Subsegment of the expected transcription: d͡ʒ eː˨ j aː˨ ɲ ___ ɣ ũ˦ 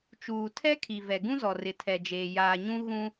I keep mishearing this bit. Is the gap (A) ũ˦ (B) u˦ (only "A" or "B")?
A